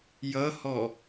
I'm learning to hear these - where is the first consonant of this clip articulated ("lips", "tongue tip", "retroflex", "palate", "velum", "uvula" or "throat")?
palate